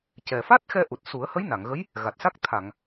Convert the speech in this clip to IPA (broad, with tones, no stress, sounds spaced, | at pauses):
c ɛ˨˩ f a˦˥ t̚ x ɛ˧ ʔ u˨˩ t̚ s u˨˩˦ ə̯ h ə˧˥ j n a˨˩˨ ŋ ɣ ə˧˥ j | ɣ a˨˩ t̚ s a˦˥ k̚ t̪ʰ a˨˩˨ ŋ